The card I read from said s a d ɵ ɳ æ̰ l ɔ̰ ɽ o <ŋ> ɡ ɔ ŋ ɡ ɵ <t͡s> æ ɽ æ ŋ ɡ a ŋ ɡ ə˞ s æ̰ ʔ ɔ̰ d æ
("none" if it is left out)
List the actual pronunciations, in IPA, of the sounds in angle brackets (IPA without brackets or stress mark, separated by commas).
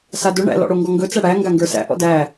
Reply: ŋ, t͡s